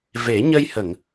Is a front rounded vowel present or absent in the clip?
absent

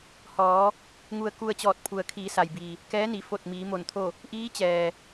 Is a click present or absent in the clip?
absent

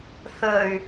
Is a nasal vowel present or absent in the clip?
absent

